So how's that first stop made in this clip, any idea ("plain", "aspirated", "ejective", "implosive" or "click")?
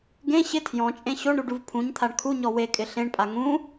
plain